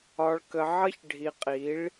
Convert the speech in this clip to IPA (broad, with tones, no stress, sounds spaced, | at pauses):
ɒ˨ ɭ k ə˨ ʕ ʌ˦ ç ɖʱ i˨ qʼ i˨˦ ɭ